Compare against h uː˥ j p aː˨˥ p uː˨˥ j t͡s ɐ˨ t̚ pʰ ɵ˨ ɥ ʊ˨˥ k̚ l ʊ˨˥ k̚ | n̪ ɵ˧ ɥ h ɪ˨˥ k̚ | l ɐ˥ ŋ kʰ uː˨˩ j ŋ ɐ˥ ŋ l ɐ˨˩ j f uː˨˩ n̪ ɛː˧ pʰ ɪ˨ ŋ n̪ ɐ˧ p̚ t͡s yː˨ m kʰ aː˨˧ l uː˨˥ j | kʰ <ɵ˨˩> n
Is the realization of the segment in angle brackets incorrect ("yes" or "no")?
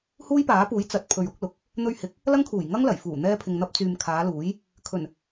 no